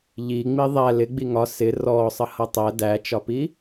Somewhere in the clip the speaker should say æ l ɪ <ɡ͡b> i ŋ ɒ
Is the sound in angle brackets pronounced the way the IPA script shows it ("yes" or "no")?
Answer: yes